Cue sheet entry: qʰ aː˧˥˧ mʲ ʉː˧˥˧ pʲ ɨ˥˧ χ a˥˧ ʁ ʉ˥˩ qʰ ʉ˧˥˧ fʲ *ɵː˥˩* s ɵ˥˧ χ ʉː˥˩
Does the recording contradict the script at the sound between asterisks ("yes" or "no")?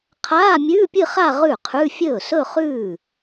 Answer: no